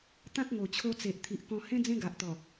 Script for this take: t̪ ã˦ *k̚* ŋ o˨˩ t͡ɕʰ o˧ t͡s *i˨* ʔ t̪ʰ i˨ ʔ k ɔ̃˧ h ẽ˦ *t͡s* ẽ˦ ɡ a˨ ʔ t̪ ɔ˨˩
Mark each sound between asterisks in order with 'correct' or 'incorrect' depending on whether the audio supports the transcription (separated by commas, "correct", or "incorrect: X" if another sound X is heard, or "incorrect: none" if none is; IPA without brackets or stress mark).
correct, incorrect: e˨, incorrect: d͡z